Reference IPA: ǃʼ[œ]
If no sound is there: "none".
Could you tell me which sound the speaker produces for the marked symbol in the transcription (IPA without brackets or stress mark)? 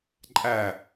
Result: æ